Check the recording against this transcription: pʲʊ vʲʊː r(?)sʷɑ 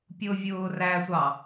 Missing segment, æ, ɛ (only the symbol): æ